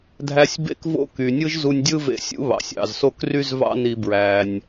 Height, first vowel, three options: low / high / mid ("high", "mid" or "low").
low